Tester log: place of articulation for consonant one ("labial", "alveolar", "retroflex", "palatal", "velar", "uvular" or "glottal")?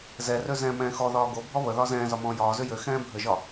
alveolar